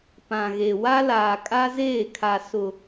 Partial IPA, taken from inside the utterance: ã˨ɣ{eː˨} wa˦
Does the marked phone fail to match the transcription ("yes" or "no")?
yes